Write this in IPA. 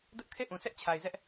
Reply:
dʊ˦ʔkʰe˦˨ ʔũ˨sʰɛ˦ʔt͡ɕʰa˨ɪ̯zɛ˦ʔ

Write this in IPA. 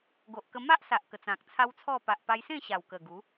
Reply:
ɡo˨ʔkə˧ ma˦ʔsa˨ʔ kə˨˩t͡sã˨k̚t͡sʰa˦wt͡sʰɔ˥˧ pa˨ʔpa˧jsẽ˥˧ ɕa˨˩wkə˨˩ ɡu˨˦

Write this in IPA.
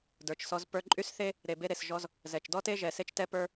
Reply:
də˞˨t͡ʃsɔ˧z pə˞˧ǃʼy˦sθe˦ | ɾe˨ be˧ɾe˨sʒɔ˧z | zɛ˨t͡ʃ dɔ˦te˦ʒɛ˨ se˦t͡ʃtɛ˦pə˞˦

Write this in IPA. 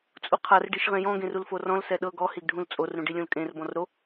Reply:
t͡sʼuqʰar ɖiʃʁẽjɔ̃ ɡẽrulforɔ̃l sɛɗɤ ɡɔ hiɡɖʱũlt͡sʼor ɾũɖilʲũlkʼẽr bɔ̃rɾo

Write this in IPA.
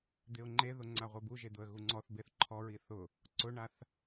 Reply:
d̪ɪʊ̯ŋ͡ǃeðʊ ŋ͡ǀaʁʷebuʒe d̪ʊə̯ɣuŋ͡ǀɔθbeθ ǃʰɔɹi θʊ | ǀʊɳaθ

